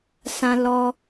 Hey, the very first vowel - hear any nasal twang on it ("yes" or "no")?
yes